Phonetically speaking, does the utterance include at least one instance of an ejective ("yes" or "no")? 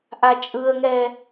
yes